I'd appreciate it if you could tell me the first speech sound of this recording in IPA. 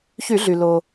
ç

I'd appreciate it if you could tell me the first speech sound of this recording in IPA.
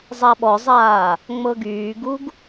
zˤ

